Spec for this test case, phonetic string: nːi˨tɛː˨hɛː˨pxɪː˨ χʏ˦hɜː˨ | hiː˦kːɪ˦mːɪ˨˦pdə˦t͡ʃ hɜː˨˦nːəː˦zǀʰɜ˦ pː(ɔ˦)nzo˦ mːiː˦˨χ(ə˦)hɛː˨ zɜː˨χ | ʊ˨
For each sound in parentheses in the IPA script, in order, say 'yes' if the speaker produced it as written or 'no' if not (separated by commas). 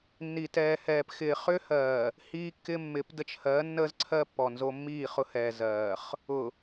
no, no